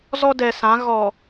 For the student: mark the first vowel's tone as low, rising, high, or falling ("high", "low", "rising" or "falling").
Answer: high